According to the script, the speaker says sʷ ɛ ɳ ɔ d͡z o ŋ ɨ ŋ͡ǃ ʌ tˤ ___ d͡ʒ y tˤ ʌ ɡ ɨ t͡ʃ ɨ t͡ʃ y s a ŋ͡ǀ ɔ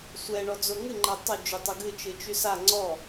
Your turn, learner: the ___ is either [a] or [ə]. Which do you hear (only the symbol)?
ə